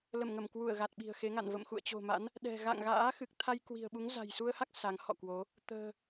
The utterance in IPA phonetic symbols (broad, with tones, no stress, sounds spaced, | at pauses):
l ə˧˩ m ŋ ə˧˩ m k w u˧˩ ə̯ ɣ a˨˩ t̚ ɓ i̤˨˩ ə̯ x e˨˦ ŋ a̰˧˨ n v ə̰˧˨ m x ṵ˧˨ ə̯ t͡ɕ o̤˨˩ m a̰˧˥ n | ɗ ɛ̤˨˩ ɣ a̰˧˨ ŋ ɣ a̰ː˧˥ x ɨ˨˩ k̚ t̪ʰ a˧ j k w i̤˨˩ ə̯ ɓ u˨˦ ŋ z a̤˨˩ j s u˧ ə̯ h a˦˥ k̚ s a˨˦ ŋ h ɔ̰˧˨ k w o˨˦ | t̪ ə̤ː˨˩